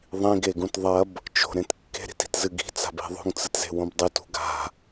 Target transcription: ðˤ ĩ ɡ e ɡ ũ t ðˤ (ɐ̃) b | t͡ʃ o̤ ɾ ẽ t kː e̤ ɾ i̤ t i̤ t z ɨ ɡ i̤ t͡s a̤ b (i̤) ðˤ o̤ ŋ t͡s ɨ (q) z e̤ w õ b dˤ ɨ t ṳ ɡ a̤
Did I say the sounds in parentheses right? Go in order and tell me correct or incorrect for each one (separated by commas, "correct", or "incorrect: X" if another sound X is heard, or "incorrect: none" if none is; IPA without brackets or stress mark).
incorrect: ɐ, incorrect: e̤, incorrect: t